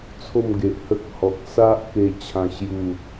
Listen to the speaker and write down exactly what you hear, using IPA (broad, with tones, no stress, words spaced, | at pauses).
t͡sʰo˥˧mɡe˨ʔhə˦k̚ hɔ˨k̚ sa˦ʔke˧ t͡ɕʰã˥˧ɕju˥˧